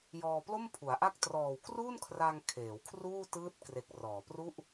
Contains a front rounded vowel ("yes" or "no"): no